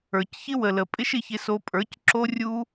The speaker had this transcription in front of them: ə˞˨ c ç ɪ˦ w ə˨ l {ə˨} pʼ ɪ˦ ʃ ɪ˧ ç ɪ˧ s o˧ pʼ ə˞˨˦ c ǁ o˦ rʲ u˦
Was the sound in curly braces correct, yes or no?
yes